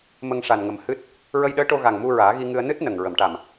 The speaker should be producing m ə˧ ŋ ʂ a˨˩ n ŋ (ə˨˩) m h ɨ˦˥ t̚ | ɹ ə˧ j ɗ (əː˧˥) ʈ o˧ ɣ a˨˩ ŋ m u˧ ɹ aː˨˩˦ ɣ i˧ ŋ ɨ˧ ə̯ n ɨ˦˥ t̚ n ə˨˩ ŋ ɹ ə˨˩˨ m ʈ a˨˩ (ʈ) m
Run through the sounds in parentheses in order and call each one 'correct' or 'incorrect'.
correct, correct, incorrect

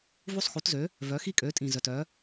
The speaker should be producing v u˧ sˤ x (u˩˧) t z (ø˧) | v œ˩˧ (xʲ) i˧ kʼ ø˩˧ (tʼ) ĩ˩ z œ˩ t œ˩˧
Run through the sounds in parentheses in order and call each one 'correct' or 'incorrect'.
correct, incorrect, incorrect, correct

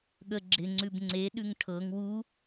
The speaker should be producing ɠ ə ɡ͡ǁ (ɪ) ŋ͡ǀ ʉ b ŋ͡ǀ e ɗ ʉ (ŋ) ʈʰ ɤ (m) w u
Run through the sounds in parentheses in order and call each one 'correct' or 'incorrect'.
correct, correct, incorrect

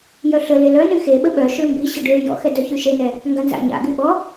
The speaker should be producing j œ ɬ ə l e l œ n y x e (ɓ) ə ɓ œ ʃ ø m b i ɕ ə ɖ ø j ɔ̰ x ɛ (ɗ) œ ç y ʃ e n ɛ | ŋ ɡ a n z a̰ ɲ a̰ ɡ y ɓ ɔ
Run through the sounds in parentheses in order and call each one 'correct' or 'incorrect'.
correct, incorrect

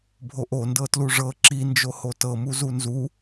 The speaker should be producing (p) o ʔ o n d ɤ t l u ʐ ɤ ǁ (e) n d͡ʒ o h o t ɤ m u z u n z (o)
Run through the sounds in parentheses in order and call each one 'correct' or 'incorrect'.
incorrect, incorrect, incorrect

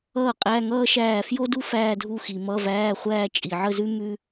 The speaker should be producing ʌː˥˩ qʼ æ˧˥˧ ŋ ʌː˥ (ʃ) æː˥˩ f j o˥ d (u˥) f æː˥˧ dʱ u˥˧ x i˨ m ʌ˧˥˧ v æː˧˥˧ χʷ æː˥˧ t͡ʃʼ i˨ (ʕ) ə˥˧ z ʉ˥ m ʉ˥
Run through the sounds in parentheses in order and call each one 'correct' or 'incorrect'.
correct, correct, correct

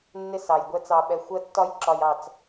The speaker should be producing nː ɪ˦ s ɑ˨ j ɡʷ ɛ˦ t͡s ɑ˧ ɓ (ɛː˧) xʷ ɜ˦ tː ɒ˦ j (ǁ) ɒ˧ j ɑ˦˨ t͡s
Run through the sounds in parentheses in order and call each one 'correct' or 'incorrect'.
incorrect, correct

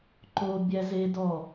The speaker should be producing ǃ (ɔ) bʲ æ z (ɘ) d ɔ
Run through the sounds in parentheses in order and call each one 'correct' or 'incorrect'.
incorrect, incorrect

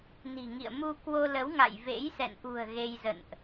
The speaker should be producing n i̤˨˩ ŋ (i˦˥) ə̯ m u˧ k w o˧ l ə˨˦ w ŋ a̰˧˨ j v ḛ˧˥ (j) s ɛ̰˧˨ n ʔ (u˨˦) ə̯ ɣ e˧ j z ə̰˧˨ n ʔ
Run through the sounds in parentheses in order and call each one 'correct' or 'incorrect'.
incorrect, correct, incorrect

